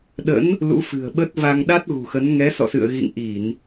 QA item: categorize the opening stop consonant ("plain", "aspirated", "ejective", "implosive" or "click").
implosive